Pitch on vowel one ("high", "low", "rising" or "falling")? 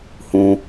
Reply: high